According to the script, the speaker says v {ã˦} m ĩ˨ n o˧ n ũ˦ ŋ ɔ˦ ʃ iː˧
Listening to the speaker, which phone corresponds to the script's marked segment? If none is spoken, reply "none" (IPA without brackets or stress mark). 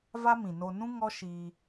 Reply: a˦